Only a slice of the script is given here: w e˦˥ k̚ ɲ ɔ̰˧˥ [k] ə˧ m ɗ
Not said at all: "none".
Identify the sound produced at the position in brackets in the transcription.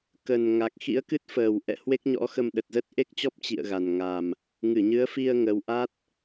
x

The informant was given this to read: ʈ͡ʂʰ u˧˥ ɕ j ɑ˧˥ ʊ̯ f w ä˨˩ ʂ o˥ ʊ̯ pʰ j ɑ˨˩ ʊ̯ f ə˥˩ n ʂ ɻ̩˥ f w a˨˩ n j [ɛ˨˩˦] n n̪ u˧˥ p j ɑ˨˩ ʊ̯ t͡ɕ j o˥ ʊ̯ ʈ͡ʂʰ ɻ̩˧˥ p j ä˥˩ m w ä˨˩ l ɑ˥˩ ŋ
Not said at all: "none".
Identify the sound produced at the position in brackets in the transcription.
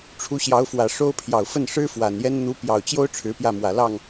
ɛ˥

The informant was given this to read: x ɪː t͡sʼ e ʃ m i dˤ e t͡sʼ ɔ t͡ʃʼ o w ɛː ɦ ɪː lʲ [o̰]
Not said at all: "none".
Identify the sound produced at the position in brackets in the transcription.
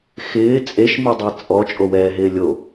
o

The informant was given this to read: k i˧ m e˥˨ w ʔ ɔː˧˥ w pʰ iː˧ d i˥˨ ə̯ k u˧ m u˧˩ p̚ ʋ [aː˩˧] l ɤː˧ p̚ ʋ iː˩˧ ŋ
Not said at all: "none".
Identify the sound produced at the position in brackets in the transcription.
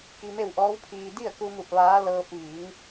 aː˧˥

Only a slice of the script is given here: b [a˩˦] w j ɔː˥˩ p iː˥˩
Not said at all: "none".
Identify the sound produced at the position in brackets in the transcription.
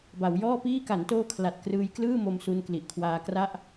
a˩˦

